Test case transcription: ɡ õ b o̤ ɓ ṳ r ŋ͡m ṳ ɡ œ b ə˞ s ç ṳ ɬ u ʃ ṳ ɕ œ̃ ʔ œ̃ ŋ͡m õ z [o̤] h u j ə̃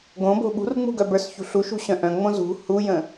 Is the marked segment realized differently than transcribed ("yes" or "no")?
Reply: yes